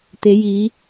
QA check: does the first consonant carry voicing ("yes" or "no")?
no